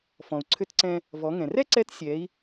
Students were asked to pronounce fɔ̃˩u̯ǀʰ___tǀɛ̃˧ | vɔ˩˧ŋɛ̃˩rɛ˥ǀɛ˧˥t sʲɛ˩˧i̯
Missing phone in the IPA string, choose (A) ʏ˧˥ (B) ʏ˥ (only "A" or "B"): A